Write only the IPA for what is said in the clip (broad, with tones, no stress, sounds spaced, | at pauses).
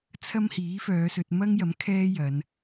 t͡sʰ ɐ˥ m h iː˨˥ f œː˨˧ s ɵ˧ t̚ m ɐ˥ ŋ j ɐ˨˥ m kʰ ɛː˥ j ɐ˨˧ n